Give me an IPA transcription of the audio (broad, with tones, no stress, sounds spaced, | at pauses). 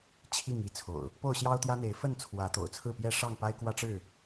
t͡ɕʰ i˥˨ ŋ i˥˨ t͡sʰ o̰˨˩ ʊ̯ | p o˥˨ ʊ̯ ɕ j ɑ˦ ʊ̯ t̪ j ä˦ n̪ e˨˦ ɪ̯ f ə˥˨ n t͡sʰ w ä˨˦ t̪ o̰˨˩ ʊ̯ t͡sʰ ɹ̩˥˨ p j ɛ˥˨ ʂ ɑ˥˨ ŋ p a˦ ɪ̯ k w ä˦ ʈ͡ʂ ɻ̩˥˨